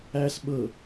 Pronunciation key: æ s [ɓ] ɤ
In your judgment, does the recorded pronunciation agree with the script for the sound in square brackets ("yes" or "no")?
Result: yes